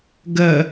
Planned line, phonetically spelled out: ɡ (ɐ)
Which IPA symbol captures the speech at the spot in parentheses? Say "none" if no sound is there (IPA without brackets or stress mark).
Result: ɐ